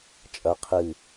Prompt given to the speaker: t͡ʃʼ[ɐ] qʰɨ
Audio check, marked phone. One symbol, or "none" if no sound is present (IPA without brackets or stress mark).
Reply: ɐ